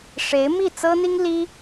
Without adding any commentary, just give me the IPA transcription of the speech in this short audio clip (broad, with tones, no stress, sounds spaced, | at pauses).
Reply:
ʂ e˧˥ ɪ̯ m i˥˩ t͡s ɤ˥ n̪ i˥ ŋ l i˥